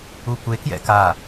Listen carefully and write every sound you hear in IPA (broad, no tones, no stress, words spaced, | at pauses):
ukʷe kjɛ̰ka